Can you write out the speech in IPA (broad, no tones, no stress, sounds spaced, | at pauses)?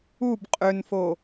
u b qʼ ʏ n f o